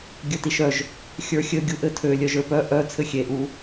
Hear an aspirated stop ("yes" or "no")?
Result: yes